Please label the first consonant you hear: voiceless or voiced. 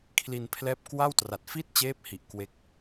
voiceless